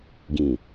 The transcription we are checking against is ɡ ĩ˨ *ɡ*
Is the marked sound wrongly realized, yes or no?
yes